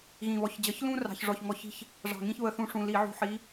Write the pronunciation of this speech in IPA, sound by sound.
ɣ ĩ˨˩ β ɔ˧˩˧ ç d͡ʑ ʌ˨˦ ç l ũ˦ r ɑ̤˨˩ ç ʐ ɔ˨˩ ç ŋ ɔ˧˩˧ ç i̤˦ ç | ʐ ɑ̤˨˩ ŋ ĩ˦ ç β ə˨˦ θ ũ˨˦ ʂ ũ˨˩ l i˧˩˧ ʕ ṳ˨˩ ħ i˨˦

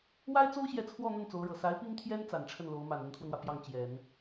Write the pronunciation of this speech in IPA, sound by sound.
w a˥ ɪ̯ t͡s o˥ ʊ̯ ɕ j ɛ˧˥ t͡sʰ w ɔ˥˧ n̪ ə˥˩ n t͡s o˧˥ ʊ̯ ɻ ɤ˨˩ s a˧˥ ɪ̯ p i˥ ŋ t̪ʰ j ɛ˥ n t͡s a˨˩ n ʈ͡ʂʰ ə˥˩ n l o˧˥ ʊ̯ m a˨˩ n ə˧˥ n t̪ʰ w ə˧ n w ä˩ p j ɑ˥˩ ŋ t͡ɕ j ɛ˨˩˦ n

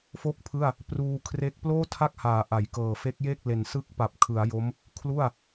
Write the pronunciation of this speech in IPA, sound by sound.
f o˥˩ k̚ pʰ ɯ˥˩ a̯ | p r uː˧ kʰ r e˥˩ k̚ p l oː˥˩ tʰ a˦˥ k̚ h aː˩˦ ʔ a˩˦ j k ɤː˨˩ f e˦˥ k̚ j e˥˩ k̚ l e˨˩ n s ɯ˦˥ k̚ p a˨˩ p̚ kʰ ɯ˩˦ a̯ j o˦˥ m | kʰ l u˥˩ a̯

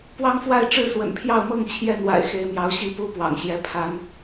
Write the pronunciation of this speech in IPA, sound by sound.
p w ɑ˦ ŋ f w a˥˨ ɪ̯ ʈ͡ʂ ɻ̩˥˨ s w ə̰˨˩ n pʰ j ɑ˥˨ ʊ̯ m ɤ˥˨ ŋ t͡ɕʰ j ɛ˥˨ n w a̰˨˩ ɪ̯ x e˨˦ ɪ̯ m j ɑ˨˦ ʊ̯ ɕ i˥˨ p u˦ p w ɑ̰˨˩ ŋ ɕ j ɛ˨˦ pʰ a˨˦ n

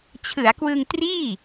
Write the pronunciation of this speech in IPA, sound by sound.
t͡ɕʰ ɯ˩˦ a̯ k w ɯ˧ ŋ t r iː˥˩

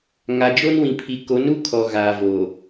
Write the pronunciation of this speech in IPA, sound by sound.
ŋ a˨ d͡ʒ o˦ n w ĩ˨ pʰ i˨ k o˨˦ n u˦ kʰ ɔ˨ ɣ aː˨ v o˨

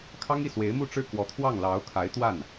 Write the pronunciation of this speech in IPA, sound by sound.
kʰ ɑ˥ ŋ i˥˩ s w e˧˥ ɪ̯ m u˥˧ ʈ͡ʂ ɻ̩˥˩ k w ɔ˧˥ t̪ʰ w ɑ˥˩ ŋ l ɑ˧˥ ʊ̯ kʰ a˧˥ ɪ̯ t̪ w a˥˩ n

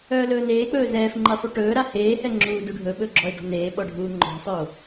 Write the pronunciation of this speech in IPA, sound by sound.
œː l ɵː n eː k͡p ɵː z ɛː f ŋ͡ǃ e sˤ u ʈ ɵː ɾ a h eː h ɛ ŋ͡ǁ uː d u ɖʱ ɵ ɓ ɵ ɡ͡ǁ ɔ e̯ d ɔ̤ n eː ɓ ɔ ɖʱ uː ŋ͡ǃ ɔ̤ sˤ œ o̯

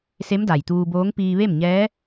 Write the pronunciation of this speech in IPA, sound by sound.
s e˧˥ m d a˩ j t̪ uː˧ b oː˧˥ ŋ p iː˧ ʋ e˥˨ m ɲ ɛː˧˥

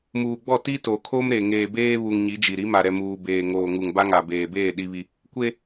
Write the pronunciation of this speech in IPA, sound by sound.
m uː˨ ɡ͡b ɔ˦˨ t i˦ t o˨ kʰ o˦ m ɾ e˨ ŋ eː˨ b eː˦ β u˨ ŋ ɲ i˨˦ d͡ʒ i˨ ɾ i˨˦ m a˨ ɾ ɛ˨ m uː˨ b eː˨ ŋ oː˨ ŋ u˨ ŋ b a˦ ŋ a˨ b eː˨ b eː˦˨ ɗ i˦ β i˦ | kʷ e˦

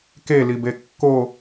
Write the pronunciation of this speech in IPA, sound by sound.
k e l i b e kː o

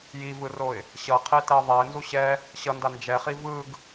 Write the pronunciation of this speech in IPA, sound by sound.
j i v ɯ r o ɪ̯ | ɕ ʌ qʰ e t ɛ ɪ̯ ðˤ ɛ ɪ̯ n z u ɕ ɛ | ɕ ʌ n d a n d͡ʒ ɛ χ i v ɯ ɡ

